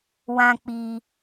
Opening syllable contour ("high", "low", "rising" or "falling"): high